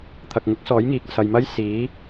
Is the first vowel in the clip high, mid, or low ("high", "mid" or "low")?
low